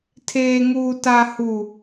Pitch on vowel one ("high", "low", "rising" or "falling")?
low